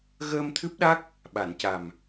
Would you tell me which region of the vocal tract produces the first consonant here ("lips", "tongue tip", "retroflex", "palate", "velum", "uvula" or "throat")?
velum